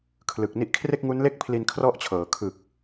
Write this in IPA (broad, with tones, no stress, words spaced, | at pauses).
kʰlɯ˨˩k̚ni˥˩ʔ kʰre˥˩k̚ŋu˦˥nle˥˩k̚pʰli˧n kʰrɔ˥˩ʔt͡ɕʰɤː˩˦ kʰɯ˨˩k̚